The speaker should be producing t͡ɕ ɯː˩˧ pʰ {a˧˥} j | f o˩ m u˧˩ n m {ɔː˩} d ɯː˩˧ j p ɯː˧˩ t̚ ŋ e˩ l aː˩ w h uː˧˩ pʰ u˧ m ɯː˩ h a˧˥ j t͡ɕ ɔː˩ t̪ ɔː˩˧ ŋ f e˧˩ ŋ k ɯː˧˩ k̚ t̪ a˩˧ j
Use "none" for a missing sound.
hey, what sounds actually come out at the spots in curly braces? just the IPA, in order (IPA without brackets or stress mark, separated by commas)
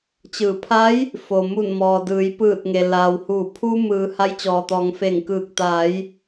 a˧˥, ɔː˩